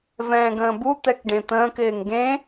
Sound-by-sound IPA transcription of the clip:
vɛ̃ːɡə̃ːbu t̪ɛkɖẽt̪ə̃ːk ɪːŋɡẽ

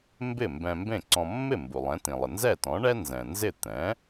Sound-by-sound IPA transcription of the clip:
mbɪ˥˩mbɛ̃˧ mbẽ˥˩ǀɔ̃˧ mːɪ˥˩ mbu˩lˠɛ̃˩˥tĩ˩lˠɪ˩ nzɛ˥˩ tɔ̃˩˥ɳɛ˥ nzɛ̃˩nzɪ˥˩ t̪ɛ̃˩˥

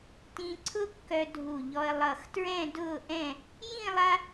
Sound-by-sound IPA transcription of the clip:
tĩ˧ǀʰʊ˥ kːœ˧ dʱu˧˩ʎɔ˧ə̯ lˠʌ˧˩xtɹɛ̃˥˧dʊː˥˧ʔɛ̃˥˧ | jĩ˥˧ lˠa˥

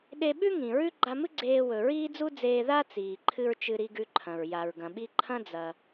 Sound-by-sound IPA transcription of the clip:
ɗe˧ɓʉ˥ ŋĩ˩ɹʉ˥ ɡ͡ǃa˧mɨ˥ ɡ͡ǀeː˧wɵ˩ɹiː˥d͡zu˥ d͡zeː˧ða˥ t͡siː˩ǃʰɨ˧ɹ t͡ʃɨ˧ɾi˧ɡʉ˧ ǃʰɐ̃˩ɹ ja˩ɹɡɐ̃˩ɓi˧ ǃʰɐ̃˥ d͡zɐ˧

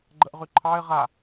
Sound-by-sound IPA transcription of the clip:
ɡ͡ǃəʔʁyǃʰɑɪ̯ ʁa

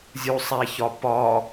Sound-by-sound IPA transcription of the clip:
zʲusˤæçɒ pɒ

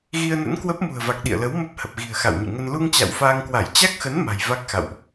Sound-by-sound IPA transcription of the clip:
ɣi˧ə̯nə̰˧˥nkwə˦˥p̚ mṳ˨˩ə̯va˨˩k̚ ɗḭ˧˨ə̯lə˨˦w mə˦˥p̚hə˨˩p̚ɣi̤˨˩ə̯ xa̰˧˨wɲɨ̰˧˨ŋə˧n lu˧ŋ t͡ɕa̰˧˨wfaː˧ŋkwa˧˩j t͡ɕa˦˥k̚xə˨˦n ma̤˨˩jva˦˥k̚xa̰˧˨wʔ

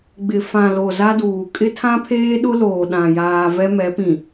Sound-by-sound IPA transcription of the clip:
ɡ͡bɪ˨fã˨lo˨ za˦duː˨ kʼɪ˦tʰã˦pʰeː˦ ɗʊ˦loː˨ɗã˨jaː˨ vɛ˦mɛ˨˦pĩ˨

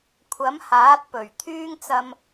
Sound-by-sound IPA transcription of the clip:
kʷʰɐ˨˥mhaː˨˥t̚pɵ˨˩ɥ t̪ʰyː˥ŋt͡sɐ˧m

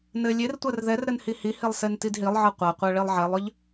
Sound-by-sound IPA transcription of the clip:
nɘ lʲertʷɜr ðɛrɾɘn hihihilˠ sentidɦilˠʕɤ qʷaqʷɜ ɭilˠʕɛlˠʏʎ

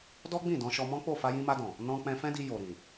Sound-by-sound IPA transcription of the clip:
dɔ˦ɡ͡bĩ˦˨dɔ̃˧ ʃɔ˧mɔ̃˦k͡po˦˨ fa˧jĩ˧ma˧dɔ̃˨ | nɔ̃˧ k͡pɛ̃˧fɛ̃˦di˧ jo˨ɾĩ˨

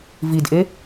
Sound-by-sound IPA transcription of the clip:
vidʔe

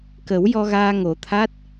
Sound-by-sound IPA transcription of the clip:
kə˨˩˦wjɔ˧ɣaː˧ ŋo˨˩˦t̪ʰa˦˥t̚

